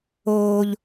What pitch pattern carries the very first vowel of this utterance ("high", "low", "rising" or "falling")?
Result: high